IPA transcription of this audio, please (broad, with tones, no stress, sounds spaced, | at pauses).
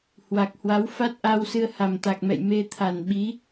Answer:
h w a˨˩ k̚ h w a˨˦ w f a˦˥ t̚ ʔ a˧ w s ɨ˧ ə̯ h a˨˩ m t̪ a˨˩ k̚ m ɛ̰˧˨ j m e˧ t̪ʰ a˨˩ n ɓ i˨˦